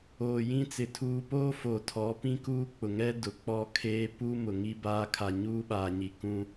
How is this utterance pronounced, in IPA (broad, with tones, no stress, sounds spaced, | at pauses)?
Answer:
oː˨ j ĩ˦ t͡s ɪ˨ tʰ uː˨ p oː˦ f o˨ tʰ ɔ˨˦ p ĩ˦ k uː˦ k͡p ʊ˨ ŋ ɛ˦ d ʊ˨ k͡p ɔ˦ kʰ eː˦ p u˦ m ʊ˨ ŋ i˦ b aː˦ kʰ a˨ ɲ uː˦ ɓ aː˨ ɲ i˨ k ũ˦